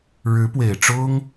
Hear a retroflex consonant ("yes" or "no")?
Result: yes